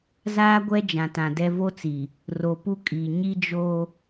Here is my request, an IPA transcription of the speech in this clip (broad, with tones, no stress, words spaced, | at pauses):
zaː˦ɡʷɛ˦ d͡ʒã˨tã˨dɛ˦ vo˦t͡si˨ | ro˨ pu˦kʼi˨ ɲi˦d͡ʒo˦